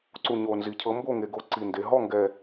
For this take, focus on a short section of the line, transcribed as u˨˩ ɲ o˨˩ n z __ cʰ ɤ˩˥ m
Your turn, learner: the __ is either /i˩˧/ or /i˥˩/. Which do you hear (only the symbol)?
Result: i˩˧